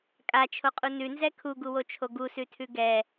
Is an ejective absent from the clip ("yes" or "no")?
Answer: no